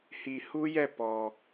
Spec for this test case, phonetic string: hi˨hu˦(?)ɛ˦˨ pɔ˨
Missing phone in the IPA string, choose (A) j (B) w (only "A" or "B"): A